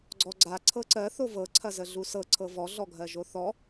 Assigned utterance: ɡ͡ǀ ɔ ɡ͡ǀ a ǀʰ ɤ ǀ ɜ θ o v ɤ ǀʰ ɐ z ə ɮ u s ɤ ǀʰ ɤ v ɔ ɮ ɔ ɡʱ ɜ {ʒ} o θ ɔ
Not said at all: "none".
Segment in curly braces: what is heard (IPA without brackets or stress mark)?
ʒ